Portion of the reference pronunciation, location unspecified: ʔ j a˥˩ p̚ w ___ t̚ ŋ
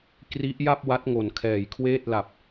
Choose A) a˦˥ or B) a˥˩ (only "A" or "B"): A